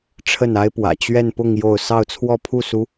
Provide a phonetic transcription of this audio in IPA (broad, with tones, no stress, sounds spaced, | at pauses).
ʈ͡ʂʰ ə˥˩ n a˥ ɪ̯ p w ä̰˨˩ t͡ɕ ɥ ɛ˥˧ n p ʊ˥˧ ŋ j o˥˧ ʊ̯ s ɑ˥˧ ʊ̯ t͡sʰ w ɔ˥˧ pʰ u˥˩ s u˧˥